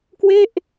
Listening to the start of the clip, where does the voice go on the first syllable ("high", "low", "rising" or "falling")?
falling